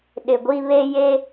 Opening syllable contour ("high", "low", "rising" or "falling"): low